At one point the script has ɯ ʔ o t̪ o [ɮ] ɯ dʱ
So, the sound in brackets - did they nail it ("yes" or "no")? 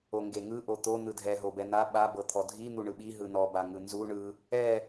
no